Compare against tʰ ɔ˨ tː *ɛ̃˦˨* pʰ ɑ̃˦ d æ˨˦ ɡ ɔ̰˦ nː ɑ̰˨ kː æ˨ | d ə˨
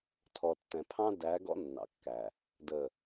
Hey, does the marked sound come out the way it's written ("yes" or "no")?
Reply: no